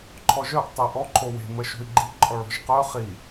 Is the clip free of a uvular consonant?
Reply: no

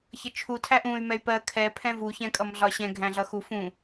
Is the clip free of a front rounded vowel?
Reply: no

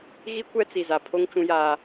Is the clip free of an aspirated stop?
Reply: no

